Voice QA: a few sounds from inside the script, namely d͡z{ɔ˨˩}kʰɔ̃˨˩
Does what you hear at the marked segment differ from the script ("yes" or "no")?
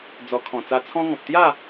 no